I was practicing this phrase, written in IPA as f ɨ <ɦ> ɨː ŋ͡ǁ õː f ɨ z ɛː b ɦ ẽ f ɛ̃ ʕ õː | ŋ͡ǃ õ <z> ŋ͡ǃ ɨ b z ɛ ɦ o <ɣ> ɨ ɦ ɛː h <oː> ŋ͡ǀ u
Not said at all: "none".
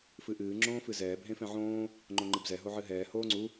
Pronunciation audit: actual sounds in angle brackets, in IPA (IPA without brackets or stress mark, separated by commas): ʔ, none, ʕ, oː